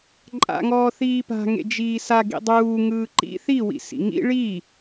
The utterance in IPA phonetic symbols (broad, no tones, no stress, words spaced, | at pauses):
ǃʼa̰ŋɔː θiːpa̤ŋḛ d͡ʒiːsa ɡḭdˤuː ŋɯːǃḭ θiwḭ sḭŋḭ ɭi